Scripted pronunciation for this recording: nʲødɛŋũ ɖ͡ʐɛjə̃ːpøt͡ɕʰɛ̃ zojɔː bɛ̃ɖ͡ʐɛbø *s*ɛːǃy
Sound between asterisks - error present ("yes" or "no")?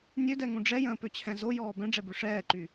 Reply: yes